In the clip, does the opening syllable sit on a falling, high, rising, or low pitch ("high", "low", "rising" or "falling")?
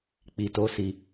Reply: low